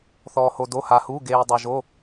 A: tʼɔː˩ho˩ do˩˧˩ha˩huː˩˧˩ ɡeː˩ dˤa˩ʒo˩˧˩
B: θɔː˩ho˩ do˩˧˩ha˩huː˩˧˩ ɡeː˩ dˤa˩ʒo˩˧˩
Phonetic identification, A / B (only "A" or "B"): B